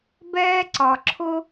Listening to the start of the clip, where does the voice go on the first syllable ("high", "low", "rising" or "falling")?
high